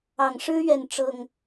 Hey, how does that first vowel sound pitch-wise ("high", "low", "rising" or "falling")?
low